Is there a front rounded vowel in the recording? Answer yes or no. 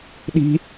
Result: no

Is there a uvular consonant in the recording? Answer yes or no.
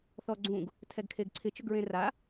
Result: no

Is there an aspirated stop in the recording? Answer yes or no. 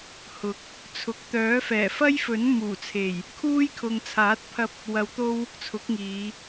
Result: yes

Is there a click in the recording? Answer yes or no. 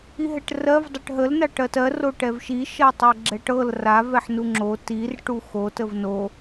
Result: yes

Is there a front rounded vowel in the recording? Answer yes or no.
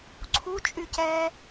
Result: yes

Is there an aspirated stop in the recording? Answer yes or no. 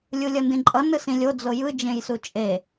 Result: no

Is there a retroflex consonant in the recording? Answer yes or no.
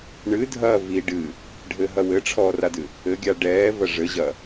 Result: yes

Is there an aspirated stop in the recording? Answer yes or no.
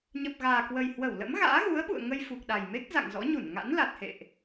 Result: no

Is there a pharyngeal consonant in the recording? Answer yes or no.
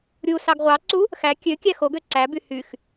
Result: no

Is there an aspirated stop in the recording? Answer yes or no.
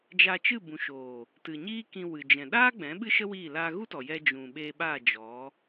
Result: no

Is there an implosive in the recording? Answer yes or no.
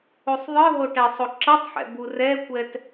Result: no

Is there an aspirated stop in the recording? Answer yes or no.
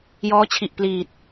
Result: yes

